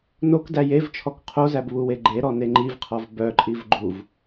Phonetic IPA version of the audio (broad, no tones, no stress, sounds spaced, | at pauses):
n o k d æ j e v t͡ʃʰ ɔ k qʰ o z æ b β u w e ɡ͡ǃ e ɾ ɔ n e ŋ͡ǃ i v qʰ ɔ v b œ ǃʼ i v ɡ͡ǃ u v